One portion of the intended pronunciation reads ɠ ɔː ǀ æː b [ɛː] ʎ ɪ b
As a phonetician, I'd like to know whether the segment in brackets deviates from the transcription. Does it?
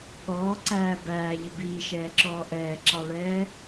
yes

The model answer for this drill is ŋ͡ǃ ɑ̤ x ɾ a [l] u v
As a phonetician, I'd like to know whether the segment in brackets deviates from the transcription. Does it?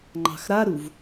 yes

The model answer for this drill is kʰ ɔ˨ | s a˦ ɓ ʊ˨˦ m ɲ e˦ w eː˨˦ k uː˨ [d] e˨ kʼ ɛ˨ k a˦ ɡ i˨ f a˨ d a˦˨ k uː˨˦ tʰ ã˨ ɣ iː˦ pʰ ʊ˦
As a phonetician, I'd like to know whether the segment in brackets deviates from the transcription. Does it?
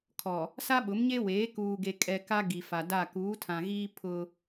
yes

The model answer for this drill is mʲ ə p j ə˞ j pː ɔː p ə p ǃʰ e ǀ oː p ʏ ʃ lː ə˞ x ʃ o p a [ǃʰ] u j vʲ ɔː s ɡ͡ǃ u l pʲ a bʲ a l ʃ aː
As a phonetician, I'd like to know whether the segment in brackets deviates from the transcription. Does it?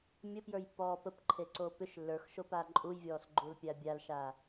yes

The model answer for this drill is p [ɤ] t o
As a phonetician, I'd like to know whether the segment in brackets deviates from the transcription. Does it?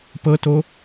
no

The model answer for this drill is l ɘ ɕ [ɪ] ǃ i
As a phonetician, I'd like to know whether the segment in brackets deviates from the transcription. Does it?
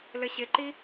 no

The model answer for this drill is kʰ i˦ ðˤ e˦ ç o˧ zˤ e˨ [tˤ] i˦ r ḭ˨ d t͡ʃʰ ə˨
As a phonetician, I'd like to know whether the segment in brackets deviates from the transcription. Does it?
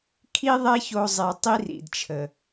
no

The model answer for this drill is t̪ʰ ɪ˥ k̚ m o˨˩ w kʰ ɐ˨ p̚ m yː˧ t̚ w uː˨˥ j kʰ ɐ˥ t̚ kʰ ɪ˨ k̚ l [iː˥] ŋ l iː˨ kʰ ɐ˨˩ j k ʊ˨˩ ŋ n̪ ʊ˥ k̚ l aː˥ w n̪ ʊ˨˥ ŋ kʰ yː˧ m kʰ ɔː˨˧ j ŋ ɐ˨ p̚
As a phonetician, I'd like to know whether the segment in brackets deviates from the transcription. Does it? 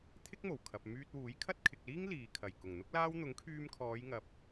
no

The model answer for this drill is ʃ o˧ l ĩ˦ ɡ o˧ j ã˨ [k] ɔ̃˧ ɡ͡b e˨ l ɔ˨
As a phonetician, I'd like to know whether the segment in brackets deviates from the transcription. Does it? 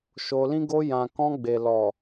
no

